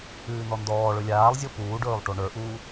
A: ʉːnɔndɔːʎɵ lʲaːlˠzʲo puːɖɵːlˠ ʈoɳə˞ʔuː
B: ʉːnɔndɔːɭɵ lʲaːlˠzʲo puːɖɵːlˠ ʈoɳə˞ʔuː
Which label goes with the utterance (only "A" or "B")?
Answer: B